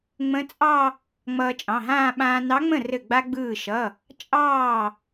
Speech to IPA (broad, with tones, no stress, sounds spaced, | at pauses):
ŋ͡m ə̃˧˥ t͡sʼ ɑ˥˧ | ŋ͡m ʌː˧ t͡ʃʼ ɑ̃˩˧˩ ɦ ãː˥˧ ɓ ãː˧ n ɑ˧˥ ŋ͡m ə̃˥˩ r ɘ˧˩ ɡ͡b a˧ ɡ͡b ɯː˧˩ ʃ ʌ˩˧˩ | t͡ʃʼ ɑː˥˩